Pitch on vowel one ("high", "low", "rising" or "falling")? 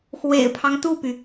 low